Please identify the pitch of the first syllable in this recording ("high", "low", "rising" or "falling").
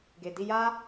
low